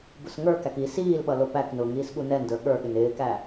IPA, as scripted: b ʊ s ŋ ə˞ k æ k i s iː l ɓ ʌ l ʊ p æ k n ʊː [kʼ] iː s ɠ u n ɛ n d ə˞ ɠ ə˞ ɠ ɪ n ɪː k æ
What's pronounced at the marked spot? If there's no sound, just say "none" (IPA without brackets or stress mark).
ŋ